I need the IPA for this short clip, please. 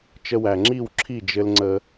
t͡ʃə˧wæ˨ŋ͡ǁi˦˨w ǁʰi˦˨d͡ʒɘ˧l ŋ͡ǀə˧

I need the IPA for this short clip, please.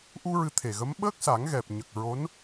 ʔu˧ ɹɨ˧t̪ʰe˨˩ɣə˧˥m ɓəː˦˥k̚sa˨˩˦ŋ ɣɛ˨˩p̚ɲə˨˩k̚ ɹo˧˥n

